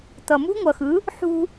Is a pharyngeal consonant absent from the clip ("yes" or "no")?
no